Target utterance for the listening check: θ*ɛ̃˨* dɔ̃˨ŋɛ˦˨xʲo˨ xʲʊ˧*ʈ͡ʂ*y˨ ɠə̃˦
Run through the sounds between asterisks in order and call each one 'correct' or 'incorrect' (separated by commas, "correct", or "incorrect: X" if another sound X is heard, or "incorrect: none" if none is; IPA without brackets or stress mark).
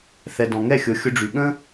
incorrect: ɛ˨, incorrect: ɖ͡ʐ